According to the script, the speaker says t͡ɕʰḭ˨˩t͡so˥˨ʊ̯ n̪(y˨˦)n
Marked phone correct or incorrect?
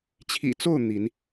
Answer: incorrect